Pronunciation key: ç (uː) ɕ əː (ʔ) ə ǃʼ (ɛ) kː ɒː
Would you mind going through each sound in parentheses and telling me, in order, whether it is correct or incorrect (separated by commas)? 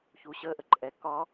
correct, correct, correct